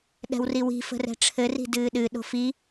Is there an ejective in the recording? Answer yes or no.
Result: no